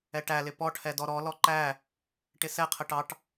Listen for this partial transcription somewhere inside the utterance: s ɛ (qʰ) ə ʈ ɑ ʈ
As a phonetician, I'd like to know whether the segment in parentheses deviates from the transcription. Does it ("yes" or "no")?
no